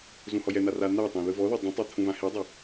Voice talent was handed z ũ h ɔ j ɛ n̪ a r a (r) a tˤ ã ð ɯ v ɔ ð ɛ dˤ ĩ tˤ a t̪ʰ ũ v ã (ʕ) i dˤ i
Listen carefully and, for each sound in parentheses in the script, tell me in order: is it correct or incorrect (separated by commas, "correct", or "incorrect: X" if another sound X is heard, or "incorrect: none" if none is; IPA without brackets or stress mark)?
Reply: incorrect: n̪, incorrect: h